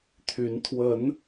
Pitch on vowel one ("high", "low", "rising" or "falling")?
rising